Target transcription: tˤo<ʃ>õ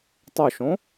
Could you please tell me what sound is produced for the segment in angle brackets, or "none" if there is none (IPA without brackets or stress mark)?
ʃ